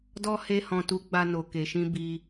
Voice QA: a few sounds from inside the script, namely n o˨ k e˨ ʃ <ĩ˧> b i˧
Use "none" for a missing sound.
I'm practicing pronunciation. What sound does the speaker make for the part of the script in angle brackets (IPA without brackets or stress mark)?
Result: ĩ˧